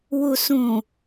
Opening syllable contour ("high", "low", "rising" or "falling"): low